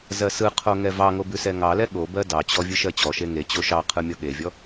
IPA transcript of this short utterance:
zɜsɯqʰo ŋɛvɑŋo bʉsɛŋɑlɛ ɠobɜ dɑt͡ɕɔ vʲɯʃɜt͡ɕɔʃe ŋet͡ɕo ʃɑqʰɯ mʲɔɠevʲɔ

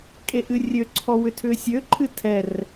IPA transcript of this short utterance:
kʼeʔɨrʲøǀʰɔ wʏtʰʏːsʲøǃʰɨ tʰɛr

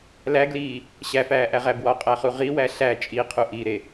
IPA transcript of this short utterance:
læɡliː | ɕæfæːʔæʁæ bwɒqʼæχu ʁiwæ ɬæ t͡ʃʼiqʰu ʔiɾe

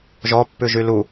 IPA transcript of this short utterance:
ʒɔpːʉʒy lu

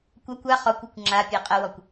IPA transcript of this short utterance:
kʷakʷ a χɔkʷɔkʷ ŋ͡ǁapʲɛ qʼəwɔkʷ

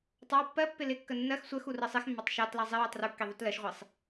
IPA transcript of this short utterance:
tˤɑ pːɜpːɪ lɪkːə nːɜx sʷɜx urɜsˤix mːɑtˤʃɑtlɑ zˤɪ wetˤrukːiðˤut lɜʃʁʷisˤ

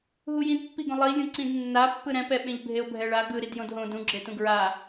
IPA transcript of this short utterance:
ɦujĩdpːiɡõ lˠi lʲũǀĩdnːa pːɯɾɛ̃pɛɓẽʎ bʱeo̯bʱɛɭa ɡɯ ɾidjõdɦõ dũɡ͡ǁetũ ɡɹa

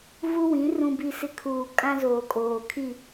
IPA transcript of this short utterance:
vu˦wĩ˨˦ rũ˨bi˨sɪ˨ kʰuː˨kʼã˦zoː˨ kʼoː˨kʰi˦˨

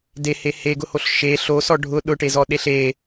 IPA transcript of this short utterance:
dehe heɡʊhoɬ ʃe ɬosɔ ɖʱʊ ɗʊʈezɔɗeɬ e

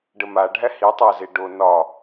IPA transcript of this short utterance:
ɖəmaɖʱæ hitˤæze ɖo nɒ

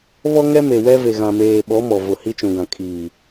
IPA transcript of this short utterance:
βɔ˦ŋɛ˦me˨ wɛ˦ ve˨ɣã˨ meː˨ɓɔ˨˦ mɔ˨ vʊ˨hi˦t͡ʃũ˨ɡã˨ kʼiː˨

